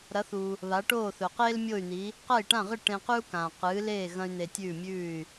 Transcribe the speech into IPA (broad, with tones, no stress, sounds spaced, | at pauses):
ɾ ɐ˩˥ θ uː˩ | β a˩˥ ʈ oː˥˩ θ ɵ˩ q eː˥ l mʲ o˥˩ y̯ n̪ i˩˥ | q ɐ˥˩ i̯ ʈ ã˥˩ ʁ ɨ˥˩ ʈ ẽ˧ q ʉ˥ u̯ k ãː˩ q ɨː˩˥ l eː˥˩ ɣ ɐ̃˥ y̯ n̪ e˧ tʲ ʉː˥˩ mʲ ʉː˥˩ y̯